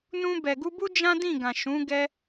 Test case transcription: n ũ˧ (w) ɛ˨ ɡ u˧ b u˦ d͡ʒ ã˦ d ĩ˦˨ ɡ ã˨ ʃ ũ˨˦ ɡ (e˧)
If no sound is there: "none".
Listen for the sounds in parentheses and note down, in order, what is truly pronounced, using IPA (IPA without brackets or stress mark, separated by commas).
b, ɛ˧